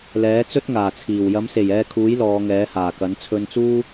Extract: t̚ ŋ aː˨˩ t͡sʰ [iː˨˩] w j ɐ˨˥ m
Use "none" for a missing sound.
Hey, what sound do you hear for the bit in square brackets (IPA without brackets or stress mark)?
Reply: iː˨˩